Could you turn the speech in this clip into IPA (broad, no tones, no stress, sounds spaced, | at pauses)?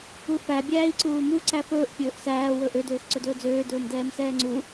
u f æ bʲ æː i̯ ǀ uː m u ǀ æ f ɵː ʔ pʲ ɵː ʔ s æː w ɵ ʔ ø d øː x ǀ ɵ d ɵː d͡z øː d ɵː m d ɛː m s ɛː ŋ͡ǀ u